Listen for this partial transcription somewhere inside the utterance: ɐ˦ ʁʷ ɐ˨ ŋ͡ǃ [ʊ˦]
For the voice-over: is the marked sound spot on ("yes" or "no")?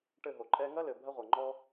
no